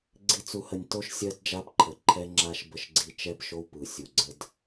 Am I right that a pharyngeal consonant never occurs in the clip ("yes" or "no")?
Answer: yes